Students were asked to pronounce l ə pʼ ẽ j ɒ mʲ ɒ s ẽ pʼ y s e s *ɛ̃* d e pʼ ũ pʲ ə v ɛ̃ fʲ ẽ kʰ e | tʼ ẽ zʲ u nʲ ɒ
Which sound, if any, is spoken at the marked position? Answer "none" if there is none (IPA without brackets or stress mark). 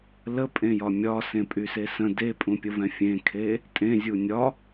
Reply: ə̃